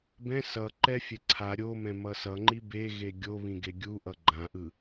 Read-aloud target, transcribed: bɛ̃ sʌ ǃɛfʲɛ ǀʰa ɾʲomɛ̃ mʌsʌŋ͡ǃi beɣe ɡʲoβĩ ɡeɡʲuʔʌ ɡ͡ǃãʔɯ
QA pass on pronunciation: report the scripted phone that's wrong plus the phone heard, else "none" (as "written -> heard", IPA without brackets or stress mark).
none